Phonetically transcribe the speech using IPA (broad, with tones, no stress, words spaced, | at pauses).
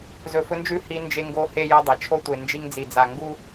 zɵ˨fɵ˦nd͡ʒʉ˦ hi˦nd͡ʒe˦ŋɡo˦ he˦jɐ˦dˤɐ˨ t͡ʃʰo˦tʷe˨ nd͡ʒi˦ŋd͡zi˨d͡za˨ ŋɡu˦